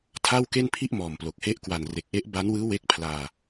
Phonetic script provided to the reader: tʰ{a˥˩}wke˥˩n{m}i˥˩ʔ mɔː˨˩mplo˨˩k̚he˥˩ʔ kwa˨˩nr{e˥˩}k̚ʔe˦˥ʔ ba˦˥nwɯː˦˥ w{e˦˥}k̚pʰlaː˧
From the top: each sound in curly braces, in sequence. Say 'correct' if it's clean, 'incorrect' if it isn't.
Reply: correct, incorrect: pʰ, incorrect: e˨˩, correct

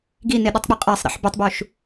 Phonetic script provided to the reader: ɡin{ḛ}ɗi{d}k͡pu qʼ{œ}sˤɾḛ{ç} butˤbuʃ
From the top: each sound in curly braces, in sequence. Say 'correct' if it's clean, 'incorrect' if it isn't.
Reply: incorrect: e, incorrect: tˤ, incorrect: æ, incorrect: ħ

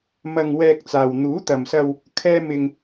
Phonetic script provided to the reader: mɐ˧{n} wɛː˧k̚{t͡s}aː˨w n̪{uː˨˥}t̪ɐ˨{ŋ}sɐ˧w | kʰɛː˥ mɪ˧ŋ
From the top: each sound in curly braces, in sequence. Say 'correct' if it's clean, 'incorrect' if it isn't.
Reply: incorrect: ŋ, correct, correct, incorrect: m

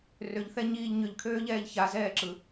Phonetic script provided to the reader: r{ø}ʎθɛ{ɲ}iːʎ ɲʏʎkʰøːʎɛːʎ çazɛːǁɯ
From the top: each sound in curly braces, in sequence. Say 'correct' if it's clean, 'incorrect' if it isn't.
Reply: correct, correct

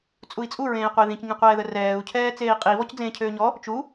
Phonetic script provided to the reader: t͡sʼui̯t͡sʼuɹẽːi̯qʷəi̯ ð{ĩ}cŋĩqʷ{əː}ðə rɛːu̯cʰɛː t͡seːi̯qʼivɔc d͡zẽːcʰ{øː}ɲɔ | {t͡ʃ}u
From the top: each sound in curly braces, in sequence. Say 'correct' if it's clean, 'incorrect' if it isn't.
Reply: correct, incorrect: ɛː, correct, correct

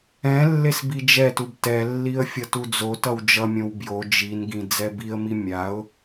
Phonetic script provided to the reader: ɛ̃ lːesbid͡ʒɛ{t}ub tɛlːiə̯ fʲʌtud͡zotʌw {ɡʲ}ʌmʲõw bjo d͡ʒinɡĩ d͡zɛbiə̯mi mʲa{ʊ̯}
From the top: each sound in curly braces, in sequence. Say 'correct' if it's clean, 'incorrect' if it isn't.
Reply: correct, incorrect: d͡ʒ, correct

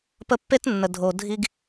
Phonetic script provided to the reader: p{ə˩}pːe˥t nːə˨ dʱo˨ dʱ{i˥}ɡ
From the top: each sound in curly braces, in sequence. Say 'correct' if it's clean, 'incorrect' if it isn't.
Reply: incorrect: ə˦, correct

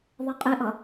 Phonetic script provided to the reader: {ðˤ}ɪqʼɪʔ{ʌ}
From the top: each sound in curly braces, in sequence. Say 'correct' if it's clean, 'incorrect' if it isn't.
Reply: correct, correct

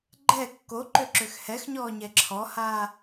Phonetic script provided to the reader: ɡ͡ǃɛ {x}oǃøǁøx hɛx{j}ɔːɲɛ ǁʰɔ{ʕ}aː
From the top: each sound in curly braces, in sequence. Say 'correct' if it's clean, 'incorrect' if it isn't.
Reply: incorrect: kː, incorrect: ɲ, incorrect: h

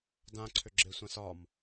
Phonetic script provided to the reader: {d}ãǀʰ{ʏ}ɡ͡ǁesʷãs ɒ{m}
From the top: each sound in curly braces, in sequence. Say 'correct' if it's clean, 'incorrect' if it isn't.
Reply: correct, correct, correct

